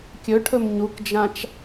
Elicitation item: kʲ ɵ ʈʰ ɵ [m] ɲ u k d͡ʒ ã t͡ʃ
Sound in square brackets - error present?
no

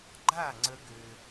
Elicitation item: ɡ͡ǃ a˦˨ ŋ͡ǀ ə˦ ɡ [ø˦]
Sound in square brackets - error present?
no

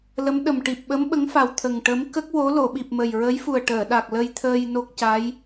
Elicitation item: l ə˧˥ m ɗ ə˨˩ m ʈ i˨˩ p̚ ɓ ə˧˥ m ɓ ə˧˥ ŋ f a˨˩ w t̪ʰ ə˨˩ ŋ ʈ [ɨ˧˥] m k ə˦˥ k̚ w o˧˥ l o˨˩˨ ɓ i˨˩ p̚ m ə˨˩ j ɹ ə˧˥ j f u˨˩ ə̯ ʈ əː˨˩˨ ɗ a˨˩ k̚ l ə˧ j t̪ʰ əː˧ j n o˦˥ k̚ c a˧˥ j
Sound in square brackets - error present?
yes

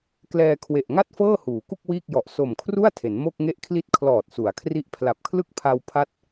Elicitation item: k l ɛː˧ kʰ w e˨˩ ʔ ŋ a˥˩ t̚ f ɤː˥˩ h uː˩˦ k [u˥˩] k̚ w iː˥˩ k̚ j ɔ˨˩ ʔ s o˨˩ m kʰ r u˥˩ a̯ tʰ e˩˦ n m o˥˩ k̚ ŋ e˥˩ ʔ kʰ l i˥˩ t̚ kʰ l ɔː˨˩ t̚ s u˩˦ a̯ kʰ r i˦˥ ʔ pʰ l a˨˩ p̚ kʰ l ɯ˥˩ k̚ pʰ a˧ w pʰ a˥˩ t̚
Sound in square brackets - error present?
no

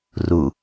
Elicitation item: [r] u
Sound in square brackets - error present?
no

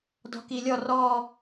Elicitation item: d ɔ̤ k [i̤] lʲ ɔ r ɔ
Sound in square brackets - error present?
yes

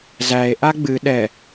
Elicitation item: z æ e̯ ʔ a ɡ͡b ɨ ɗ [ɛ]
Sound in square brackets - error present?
no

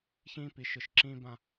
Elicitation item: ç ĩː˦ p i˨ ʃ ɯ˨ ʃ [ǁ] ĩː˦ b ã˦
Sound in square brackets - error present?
no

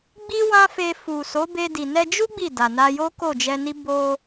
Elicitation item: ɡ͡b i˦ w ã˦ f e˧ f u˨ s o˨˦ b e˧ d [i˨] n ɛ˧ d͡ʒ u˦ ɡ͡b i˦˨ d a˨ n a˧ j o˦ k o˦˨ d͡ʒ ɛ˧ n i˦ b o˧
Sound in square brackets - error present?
no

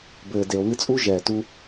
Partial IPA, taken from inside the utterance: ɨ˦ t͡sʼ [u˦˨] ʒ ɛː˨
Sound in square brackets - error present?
yes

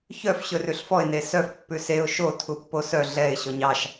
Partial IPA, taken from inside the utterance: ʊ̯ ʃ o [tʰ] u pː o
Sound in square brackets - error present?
no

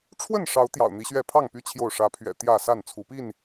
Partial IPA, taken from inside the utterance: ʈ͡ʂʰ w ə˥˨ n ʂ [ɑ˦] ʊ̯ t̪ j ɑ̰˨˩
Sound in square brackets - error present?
yes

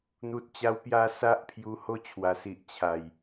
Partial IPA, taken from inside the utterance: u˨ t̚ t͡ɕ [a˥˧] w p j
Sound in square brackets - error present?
yes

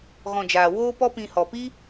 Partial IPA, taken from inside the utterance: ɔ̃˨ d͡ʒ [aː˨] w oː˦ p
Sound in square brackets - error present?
no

